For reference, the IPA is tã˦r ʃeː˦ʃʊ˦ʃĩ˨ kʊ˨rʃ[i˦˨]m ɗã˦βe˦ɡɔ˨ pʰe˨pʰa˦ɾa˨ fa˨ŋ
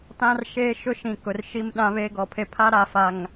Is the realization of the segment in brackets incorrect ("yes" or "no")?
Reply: no